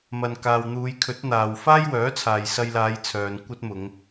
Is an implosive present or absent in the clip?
absent